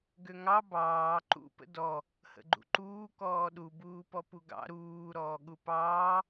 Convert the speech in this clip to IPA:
ɡ ø ŋ ɑ b ɑː ǃ ṵ p ə̰ d ɔ | h ə̰ ɡ͡ǃ ṵ ǃ uː k ɔː ɗ u b uː p ɔ p u ɡ ɑ̰ ɾ uː ɾ ɔː ɠ u p ɑː

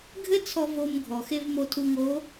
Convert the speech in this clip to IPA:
ɡʱ ɘ˥ t͡sʰ ɔ˧ v o˧ m ɡʱ ɔ˩ x e˧ v m o˧ tʰ u˧ ŋ o˧˥

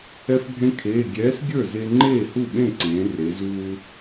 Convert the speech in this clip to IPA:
ɛ˧ f bʱ ẽ˧ kʰ eː˩˧˩ ɡʲ ɛː˨˥ s ɡʲ ə˞˥˩ z e˧ ŋ͡ǃ eː˥˩ h u˥˩ ɓ ẽ˥˩ ǀ ẽː˩˧ r e˩˧ z uː˧

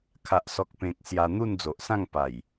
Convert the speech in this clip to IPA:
kʰ a˨ ʔ s ɔ˨ k̚ p ẽ˨ k̚ s j a˧ n̪ u˥˧ n d͡z o˨ ʔ s ã˥˧ ŋ p a˨˩ j

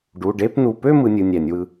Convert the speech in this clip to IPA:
ɖ u˩˧˩ ɖ e˧˥˧ p n u˩˧˩ p ø˥˧ m ɯ˨˥ nʲ ɯ˩˧˩ nʲ æ˧˩˧ nʲ w ɯ˨˥

